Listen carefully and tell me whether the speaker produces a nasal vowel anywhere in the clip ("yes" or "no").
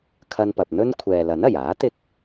no